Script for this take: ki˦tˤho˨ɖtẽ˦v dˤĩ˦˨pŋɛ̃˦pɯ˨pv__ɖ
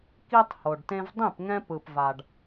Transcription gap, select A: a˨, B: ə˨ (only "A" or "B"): A